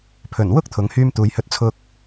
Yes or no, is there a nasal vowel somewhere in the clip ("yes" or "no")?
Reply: no